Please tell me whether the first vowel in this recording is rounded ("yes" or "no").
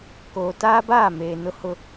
yes